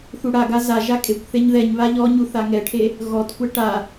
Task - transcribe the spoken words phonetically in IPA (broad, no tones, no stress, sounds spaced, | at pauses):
θ u ɽ a ɡ a z a ʒ a kʼ e kʷ θ e ɲ ð ɛ ɲ β a ʎ ɔ ɲ u θ a ŋ ɛ ʈʰ e | ɣ ɔ t kʷ ɛ ʈ a